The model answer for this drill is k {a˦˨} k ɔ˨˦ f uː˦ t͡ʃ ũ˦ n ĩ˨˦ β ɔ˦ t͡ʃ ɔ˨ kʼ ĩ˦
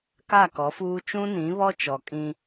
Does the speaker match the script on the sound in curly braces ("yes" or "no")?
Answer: yes